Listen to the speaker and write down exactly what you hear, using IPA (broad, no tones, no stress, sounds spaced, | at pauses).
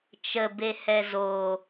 t͡ʃ ə b e h ɛ z o